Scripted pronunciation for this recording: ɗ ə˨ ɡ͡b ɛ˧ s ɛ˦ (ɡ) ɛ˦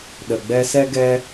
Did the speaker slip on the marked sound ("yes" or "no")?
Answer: no